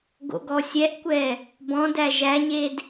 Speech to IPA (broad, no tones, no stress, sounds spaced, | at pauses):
ɡ o̰ ɡ ɔ sʲ ɛ ʔ kʷ ɛ | b ɔ̃ d æ ʒ æ ɲ e d